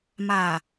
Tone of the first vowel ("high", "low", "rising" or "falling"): low